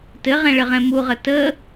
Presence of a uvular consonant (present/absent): present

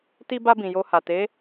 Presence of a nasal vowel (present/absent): present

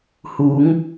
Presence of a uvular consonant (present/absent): absent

